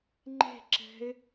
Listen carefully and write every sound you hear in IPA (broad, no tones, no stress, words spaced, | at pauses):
ŋ͡ǃe̤ǁɛ̤ɪ̯